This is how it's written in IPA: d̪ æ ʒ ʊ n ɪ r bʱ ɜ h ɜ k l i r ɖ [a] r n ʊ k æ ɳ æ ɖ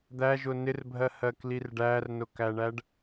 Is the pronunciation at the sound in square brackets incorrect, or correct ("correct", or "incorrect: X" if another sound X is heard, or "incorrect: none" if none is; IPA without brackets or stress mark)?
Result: incorrect: æ